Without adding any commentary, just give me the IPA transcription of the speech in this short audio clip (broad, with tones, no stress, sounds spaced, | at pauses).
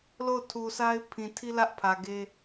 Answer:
l o˦˨ ʊ̯ tʰ u˨ s a˦ ɪ̯ pʰ ĩ˨ tʰ i˦ l ä˦ ʔ pʰ ä˨ ɡ e˦